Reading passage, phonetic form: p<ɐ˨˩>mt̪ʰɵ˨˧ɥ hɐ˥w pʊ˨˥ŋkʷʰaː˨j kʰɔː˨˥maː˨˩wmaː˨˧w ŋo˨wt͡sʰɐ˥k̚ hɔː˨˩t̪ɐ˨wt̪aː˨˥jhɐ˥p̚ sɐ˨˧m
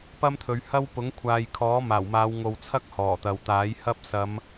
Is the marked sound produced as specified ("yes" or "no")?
no